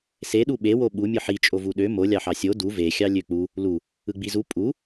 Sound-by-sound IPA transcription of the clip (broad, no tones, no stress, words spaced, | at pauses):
seɗu ɓewo ɓumʲɯ ħit͡ʃʼovu ɗø mo lʲɑħɑsʲo du vexʲɑ lʲøk͡pu | lu | ɯɡ͡bizu pʼu